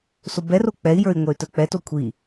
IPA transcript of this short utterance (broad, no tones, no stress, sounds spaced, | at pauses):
s o b ɛ r o k͡p ɛ i̯ j ə˞ i̯ ŋʷ ɛ y̯ t ə˞ k͡p ɛ t o kʷʰ i